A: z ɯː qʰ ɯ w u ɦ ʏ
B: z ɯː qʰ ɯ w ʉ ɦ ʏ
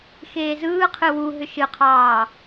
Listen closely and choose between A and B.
A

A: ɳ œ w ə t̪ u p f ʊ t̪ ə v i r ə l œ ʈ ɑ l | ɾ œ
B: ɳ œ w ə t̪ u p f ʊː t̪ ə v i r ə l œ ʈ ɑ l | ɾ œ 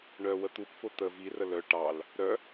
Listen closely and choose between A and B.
A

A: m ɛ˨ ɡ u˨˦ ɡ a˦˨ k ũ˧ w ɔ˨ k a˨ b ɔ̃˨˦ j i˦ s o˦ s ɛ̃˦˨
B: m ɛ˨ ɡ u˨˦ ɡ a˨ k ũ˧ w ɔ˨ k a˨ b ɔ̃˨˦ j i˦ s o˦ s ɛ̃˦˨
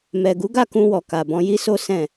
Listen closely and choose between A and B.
A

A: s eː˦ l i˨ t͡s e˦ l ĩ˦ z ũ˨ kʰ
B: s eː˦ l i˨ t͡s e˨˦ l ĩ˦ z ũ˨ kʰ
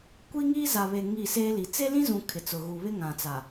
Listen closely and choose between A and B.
A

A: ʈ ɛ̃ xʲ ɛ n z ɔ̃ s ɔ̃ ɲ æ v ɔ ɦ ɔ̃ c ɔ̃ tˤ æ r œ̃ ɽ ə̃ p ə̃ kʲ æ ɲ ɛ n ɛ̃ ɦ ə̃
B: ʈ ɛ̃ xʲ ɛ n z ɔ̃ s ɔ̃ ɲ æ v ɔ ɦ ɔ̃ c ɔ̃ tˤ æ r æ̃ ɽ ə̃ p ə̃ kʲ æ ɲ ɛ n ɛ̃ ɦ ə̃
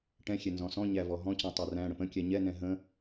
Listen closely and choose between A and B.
B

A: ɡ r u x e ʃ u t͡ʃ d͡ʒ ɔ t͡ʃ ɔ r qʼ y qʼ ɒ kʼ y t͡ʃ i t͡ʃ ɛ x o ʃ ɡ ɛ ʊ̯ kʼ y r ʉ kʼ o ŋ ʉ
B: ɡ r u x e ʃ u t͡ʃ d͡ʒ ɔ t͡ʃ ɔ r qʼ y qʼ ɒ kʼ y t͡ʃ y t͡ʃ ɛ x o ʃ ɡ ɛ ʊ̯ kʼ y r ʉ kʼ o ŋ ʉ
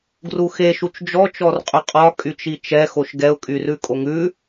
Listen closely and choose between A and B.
A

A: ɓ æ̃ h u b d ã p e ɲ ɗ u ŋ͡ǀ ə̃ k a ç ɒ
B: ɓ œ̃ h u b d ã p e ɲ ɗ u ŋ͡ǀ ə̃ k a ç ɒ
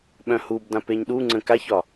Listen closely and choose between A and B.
B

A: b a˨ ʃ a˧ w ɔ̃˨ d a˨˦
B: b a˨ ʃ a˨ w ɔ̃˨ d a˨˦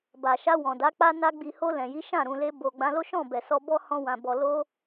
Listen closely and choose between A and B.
A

